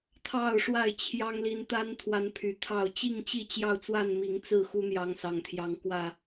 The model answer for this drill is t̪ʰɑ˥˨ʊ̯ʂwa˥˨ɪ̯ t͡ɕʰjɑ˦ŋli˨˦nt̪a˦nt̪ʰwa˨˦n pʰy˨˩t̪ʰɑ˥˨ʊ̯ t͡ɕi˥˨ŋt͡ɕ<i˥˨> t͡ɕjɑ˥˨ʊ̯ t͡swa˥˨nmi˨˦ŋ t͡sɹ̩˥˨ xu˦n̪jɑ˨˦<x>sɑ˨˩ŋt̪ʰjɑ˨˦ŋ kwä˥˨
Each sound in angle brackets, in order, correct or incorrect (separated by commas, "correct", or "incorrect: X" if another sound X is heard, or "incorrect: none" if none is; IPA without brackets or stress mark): correct, incorrect: ŋ